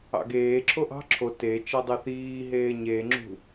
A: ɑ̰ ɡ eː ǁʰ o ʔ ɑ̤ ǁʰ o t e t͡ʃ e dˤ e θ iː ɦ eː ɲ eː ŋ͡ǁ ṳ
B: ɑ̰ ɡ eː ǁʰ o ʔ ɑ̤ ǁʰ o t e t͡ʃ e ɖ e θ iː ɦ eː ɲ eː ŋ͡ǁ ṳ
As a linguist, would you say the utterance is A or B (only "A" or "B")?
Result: A